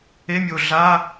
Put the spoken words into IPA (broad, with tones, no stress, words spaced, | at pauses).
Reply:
e˧˥˧mʲo˨˩ ɮa˧˥˧